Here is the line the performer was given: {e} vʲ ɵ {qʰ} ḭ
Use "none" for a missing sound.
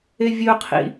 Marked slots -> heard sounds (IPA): e, qʰ

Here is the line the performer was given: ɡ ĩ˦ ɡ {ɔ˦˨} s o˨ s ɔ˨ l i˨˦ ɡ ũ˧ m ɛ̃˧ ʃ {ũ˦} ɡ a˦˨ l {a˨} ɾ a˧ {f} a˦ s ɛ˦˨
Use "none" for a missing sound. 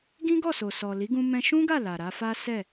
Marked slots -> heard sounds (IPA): ɔ˦˨, ũ˦, a˨, f

